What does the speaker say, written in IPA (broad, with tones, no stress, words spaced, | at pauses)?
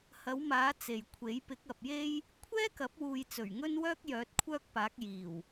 hɐ˨˥wmaː˨˥ t͡se˨jkʷʰe˨˥j pɪ˨˥k̚ɐ˨p̚je˥j | kʷʰɛː˥kɐ˨˥p̚wuː˨j t͡sɵ˨˩ɥŋɵ˥nwœː˥k̚ jœː˨˥t̚kʷʰœː˥k̚paː˨˥k̚ jiː˨˩w